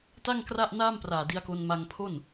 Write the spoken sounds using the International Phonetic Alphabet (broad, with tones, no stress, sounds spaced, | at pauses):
t a˥˩ ŋ k r a˥˩ ʔ n aː˥˩ m p r aː˨˩ d i˧ a̯ k o˧ n m a˧ ŋ pʰ o˥˩ n